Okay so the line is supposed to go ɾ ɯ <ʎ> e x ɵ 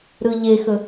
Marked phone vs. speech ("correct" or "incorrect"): correct